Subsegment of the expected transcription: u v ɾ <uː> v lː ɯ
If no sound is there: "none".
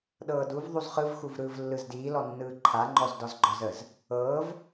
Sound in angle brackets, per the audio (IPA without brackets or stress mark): ɯː